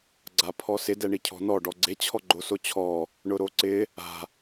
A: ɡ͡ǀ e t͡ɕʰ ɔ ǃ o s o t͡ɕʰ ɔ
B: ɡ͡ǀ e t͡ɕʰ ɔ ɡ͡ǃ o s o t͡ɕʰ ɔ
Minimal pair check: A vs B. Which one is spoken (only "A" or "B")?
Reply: B